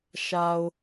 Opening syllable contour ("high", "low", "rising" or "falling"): low